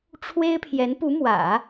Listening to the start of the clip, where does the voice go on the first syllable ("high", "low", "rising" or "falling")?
high